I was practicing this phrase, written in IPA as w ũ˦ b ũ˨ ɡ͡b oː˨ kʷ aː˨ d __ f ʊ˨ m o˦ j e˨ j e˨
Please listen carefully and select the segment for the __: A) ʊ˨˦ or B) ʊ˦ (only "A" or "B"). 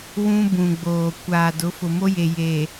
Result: A